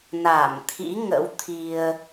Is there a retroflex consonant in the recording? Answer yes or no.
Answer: no